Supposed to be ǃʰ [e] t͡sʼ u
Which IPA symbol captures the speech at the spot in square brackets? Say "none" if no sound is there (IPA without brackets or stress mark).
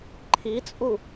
i